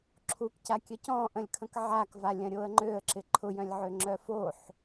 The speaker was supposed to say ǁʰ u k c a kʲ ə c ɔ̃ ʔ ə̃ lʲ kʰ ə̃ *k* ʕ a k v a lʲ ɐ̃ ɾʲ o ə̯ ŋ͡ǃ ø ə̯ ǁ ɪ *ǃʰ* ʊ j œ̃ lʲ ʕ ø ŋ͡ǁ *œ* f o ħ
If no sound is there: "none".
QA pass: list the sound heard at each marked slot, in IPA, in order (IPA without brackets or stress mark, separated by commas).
k, ǃʰ, œ